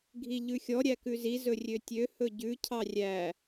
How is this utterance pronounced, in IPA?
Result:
ɡʱ i ʎ ʉ xʲ ɔ ɾʲ æ k ʉ z i z ɵ rʲ ø tʲ ø h ɵ ɟ ʉ cʰ ɑ rʲ æ

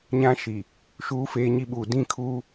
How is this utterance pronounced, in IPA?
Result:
ɲ ã˦ ʃ i˨ | ʃ uː˦ f eː˦ ɲ i˦ ɓ uː˨ d ĩ˦ kʰ uː˦

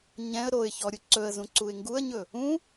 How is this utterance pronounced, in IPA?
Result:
ɲ ɛ̃ ə̯ ɾ o ɪ̯ ç ɔ ɾʲ u ǀ ɵ ə̯ z ũ ǀ u ɪ̯ ŋ ɡ u ə̯ ɲ ɵ | ũ

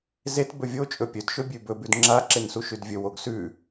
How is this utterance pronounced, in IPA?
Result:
z e t b ɵ vʲ o t͡ʃʼ ɵ pʲ ɵ d ʃ ɵ bʲ ʉ b ɵ b ʉ d ŋ͡ǁ a ǁ e n s u ʃ ʉ d vʲ ɵ w o ɡ s ʉ

